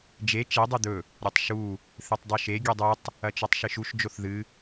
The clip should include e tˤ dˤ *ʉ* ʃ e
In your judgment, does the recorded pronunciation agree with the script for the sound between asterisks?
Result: yes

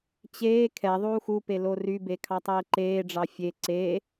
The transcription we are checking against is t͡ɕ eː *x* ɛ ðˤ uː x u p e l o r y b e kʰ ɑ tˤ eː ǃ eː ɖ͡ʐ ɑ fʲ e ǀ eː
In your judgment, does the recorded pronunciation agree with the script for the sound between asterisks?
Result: no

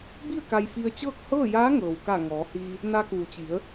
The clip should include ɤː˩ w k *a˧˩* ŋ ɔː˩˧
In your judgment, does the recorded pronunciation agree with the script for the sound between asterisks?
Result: yes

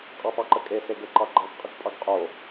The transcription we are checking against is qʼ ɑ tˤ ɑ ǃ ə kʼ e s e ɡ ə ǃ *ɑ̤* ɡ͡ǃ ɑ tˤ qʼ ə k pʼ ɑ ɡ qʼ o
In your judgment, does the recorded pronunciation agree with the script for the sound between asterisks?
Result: no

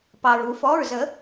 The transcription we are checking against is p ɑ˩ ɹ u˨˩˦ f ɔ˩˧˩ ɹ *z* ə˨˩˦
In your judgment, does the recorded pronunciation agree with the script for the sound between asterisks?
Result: yes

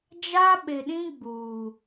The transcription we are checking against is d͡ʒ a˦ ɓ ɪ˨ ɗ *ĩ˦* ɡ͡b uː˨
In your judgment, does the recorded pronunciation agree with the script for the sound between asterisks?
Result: yes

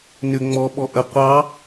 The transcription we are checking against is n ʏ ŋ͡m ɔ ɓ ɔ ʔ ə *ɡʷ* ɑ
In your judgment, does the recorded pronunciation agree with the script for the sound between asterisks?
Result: no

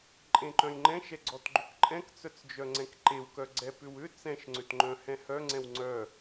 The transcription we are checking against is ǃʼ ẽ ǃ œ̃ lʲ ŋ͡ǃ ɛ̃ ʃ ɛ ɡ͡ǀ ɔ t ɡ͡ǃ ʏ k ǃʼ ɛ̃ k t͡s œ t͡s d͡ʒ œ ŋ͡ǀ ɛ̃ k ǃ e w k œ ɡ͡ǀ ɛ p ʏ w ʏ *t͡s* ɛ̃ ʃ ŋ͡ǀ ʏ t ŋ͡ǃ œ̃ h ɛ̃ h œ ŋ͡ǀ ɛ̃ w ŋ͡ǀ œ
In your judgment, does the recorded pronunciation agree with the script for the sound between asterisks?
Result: yes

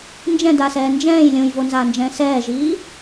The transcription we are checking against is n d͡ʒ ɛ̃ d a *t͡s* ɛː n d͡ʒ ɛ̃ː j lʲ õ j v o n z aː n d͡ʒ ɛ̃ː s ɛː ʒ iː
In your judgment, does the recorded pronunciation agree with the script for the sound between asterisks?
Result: no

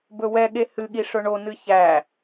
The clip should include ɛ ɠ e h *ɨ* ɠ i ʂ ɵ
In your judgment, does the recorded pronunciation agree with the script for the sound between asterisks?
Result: yes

